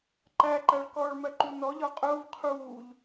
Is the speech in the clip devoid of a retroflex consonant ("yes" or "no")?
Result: no